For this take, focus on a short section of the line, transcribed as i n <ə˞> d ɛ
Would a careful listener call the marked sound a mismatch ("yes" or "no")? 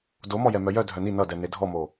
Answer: yes